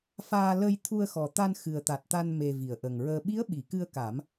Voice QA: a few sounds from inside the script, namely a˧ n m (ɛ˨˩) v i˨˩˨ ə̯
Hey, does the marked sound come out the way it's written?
no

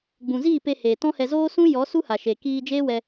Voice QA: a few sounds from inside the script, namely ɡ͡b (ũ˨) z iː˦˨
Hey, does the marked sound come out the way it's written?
yes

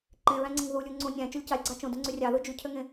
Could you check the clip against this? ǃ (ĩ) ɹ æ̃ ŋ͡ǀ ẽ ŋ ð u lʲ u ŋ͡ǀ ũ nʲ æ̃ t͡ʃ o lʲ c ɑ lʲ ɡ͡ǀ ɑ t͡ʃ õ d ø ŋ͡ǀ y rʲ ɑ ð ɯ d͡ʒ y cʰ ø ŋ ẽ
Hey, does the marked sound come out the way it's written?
no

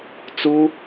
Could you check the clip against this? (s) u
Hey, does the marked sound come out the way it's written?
no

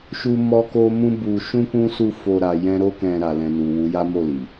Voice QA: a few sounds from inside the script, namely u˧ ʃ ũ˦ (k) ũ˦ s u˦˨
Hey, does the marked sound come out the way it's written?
yes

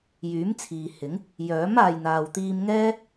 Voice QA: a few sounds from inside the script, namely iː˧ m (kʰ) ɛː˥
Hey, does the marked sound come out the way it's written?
no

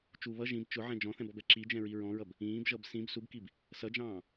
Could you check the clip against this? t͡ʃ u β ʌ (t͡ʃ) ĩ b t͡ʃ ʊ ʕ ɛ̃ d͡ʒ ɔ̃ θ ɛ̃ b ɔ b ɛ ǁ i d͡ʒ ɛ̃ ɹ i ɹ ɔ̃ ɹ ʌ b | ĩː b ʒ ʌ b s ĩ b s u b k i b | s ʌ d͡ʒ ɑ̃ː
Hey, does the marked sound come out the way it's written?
no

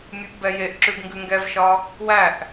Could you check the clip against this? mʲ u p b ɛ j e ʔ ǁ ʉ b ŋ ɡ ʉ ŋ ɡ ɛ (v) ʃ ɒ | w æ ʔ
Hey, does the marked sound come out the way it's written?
yes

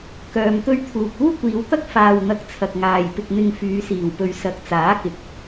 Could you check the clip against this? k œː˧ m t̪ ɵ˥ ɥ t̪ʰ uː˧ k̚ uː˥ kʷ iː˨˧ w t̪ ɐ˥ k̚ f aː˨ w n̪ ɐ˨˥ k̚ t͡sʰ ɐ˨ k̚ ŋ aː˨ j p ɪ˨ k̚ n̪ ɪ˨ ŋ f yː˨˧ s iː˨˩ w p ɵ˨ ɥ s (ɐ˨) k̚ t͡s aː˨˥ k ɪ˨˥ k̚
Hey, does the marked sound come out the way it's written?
no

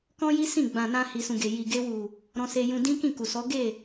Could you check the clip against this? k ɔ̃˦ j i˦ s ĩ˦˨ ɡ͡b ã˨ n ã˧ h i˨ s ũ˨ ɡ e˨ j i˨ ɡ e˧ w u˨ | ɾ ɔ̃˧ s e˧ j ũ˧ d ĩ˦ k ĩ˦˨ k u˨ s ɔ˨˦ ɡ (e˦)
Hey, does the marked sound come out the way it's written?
no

